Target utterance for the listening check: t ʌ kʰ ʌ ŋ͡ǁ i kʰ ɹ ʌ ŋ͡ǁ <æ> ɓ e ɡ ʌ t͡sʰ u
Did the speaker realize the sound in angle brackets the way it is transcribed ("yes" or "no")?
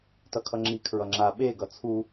no